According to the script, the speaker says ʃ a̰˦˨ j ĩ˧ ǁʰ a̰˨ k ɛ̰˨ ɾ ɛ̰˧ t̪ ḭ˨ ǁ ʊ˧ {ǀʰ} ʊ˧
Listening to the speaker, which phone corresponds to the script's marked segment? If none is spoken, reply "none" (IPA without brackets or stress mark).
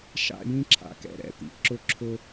ǁʰ